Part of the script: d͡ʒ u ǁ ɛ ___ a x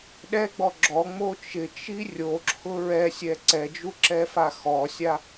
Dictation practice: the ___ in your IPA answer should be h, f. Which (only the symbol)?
f